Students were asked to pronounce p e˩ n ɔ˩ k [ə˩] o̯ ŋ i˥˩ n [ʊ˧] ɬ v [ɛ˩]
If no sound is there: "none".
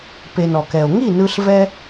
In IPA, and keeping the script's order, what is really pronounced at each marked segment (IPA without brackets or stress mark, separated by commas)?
ɛ˩, ɯ˧, ɛ˧